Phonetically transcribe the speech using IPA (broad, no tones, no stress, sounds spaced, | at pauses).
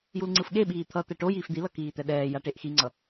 j u l ŋ͡ǀ ɯ f ɠ e ɓ iː t̪ʰ ʌ t̪ ɛ ʈ o j iː f d̪ i l ʌ k iː t̪ ɛ ɗ ɛː j a ʈ e ʔ x i ŋ͡ǀ ʌ